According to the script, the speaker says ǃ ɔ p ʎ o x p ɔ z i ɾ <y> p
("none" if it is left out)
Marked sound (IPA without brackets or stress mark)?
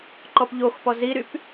y